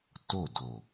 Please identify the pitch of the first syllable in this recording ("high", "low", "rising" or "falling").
falling